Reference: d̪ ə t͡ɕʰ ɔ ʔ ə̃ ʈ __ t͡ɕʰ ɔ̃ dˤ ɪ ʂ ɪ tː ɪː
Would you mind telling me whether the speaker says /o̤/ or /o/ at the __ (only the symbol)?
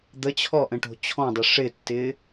o̤